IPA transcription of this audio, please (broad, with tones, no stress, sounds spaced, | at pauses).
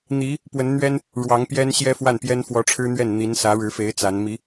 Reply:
n̪ i˧˥ | p w ə˧˥ n n̪ ɥ ɛ˥ n | ɻ w ɑ˧˥ ŋ p j ɛ˥ n ɕ j ɛ˥ f w a˥˩ n p j ɛ˥ n f w ɔ˧˥ ʈ͡ʂʰ ɻ̩˥ n̪ ɥ ɛ˥˩ n n̪ i˧˥ n s ä˧˥ ɻ ɻ̩˧˥ f e˧˥ ɪ̯ t͡s a˧˥ n m i˧˥